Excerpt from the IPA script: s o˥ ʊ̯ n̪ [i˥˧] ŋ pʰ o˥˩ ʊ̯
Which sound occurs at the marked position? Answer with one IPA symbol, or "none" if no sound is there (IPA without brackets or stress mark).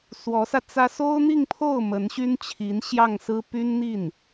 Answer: i˥˧